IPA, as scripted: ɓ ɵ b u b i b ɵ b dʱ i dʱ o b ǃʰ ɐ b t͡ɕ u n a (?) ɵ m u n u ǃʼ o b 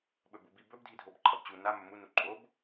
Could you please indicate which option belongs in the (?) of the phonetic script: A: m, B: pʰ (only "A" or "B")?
A